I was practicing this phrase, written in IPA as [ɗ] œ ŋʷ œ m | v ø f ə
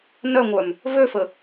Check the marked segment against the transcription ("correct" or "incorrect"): incorrect